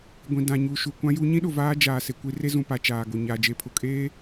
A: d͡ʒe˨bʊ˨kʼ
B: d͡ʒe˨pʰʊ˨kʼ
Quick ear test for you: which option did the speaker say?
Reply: B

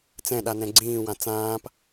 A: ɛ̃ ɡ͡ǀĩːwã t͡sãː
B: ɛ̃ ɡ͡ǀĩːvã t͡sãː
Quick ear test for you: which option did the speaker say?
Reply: A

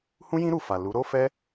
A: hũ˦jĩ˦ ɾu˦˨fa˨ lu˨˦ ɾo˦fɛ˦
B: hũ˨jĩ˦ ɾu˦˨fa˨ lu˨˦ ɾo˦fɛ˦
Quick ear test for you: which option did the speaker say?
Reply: A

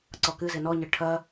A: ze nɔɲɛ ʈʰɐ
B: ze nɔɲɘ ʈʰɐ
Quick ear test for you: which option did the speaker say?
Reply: B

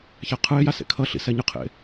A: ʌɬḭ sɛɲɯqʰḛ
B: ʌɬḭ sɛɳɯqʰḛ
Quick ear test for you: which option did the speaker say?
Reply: A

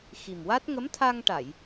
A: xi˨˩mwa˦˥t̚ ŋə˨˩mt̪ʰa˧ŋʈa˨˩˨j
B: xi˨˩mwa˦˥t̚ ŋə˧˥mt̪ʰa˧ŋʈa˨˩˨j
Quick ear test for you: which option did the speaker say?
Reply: B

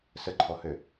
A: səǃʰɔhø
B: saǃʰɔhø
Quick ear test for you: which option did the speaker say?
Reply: A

